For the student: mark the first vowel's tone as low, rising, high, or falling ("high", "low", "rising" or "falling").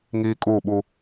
high